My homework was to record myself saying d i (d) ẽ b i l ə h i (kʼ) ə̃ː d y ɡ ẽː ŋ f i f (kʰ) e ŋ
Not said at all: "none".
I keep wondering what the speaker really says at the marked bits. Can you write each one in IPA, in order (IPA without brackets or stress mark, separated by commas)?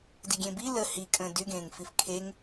ɡʲ, kʼ, kʰ